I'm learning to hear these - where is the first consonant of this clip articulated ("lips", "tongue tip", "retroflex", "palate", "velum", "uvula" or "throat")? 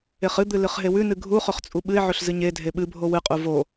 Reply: uvula